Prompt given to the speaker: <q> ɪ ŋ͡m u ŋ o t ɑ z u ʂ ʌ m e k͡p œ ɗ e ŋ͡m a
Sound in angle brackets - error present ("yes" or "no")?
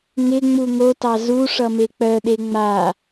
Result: yes